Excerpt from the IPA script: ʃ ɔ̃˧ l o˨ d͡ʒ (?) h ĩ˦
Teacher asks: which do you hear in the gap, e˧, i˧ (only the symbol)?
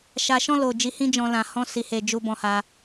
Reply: i˧